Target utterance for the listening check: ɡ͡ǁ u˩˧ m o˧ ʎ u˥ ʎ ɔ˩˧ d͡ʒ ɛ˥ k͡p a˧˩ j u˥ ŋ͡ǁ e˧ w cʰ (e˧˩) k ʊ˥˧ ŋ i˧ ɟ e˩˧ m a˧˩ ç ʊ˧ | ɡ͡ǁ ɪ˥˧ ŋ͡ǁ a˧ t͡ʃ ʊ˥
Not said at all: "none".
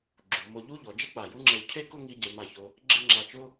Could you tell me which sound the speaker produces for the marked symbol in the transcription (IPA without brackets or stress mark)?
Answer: e˥˧